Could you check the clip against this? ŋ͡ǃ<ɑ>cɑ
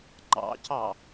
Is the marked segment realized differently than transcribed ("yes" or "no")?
yes